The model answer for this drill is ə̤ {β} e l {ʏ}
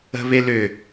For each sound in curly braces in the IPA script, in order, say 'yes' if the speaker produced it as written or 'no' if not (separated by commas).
yes, yes